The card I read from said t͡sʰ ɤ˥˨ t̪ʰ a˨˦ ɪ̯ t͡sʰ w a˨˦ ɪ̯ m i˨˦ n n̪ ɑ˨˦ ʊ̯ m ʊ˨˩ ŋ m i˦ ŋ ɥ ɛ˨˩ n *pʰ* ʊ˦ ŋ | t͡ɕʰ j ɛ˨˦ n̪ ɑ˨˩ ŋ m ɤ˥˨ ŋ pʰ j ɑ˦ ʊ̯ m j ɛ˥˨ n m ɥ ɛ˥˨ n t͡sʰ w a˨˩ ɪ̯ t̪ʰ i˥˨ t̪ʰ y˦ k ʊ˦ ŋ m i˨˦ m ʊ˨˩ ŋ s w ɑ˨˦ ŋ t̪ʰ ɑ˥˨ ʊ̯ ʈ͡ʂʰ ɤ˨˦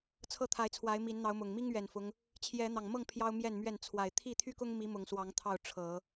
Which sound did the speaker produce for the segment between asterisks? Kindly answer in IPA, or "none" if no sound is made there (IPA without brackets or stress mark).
f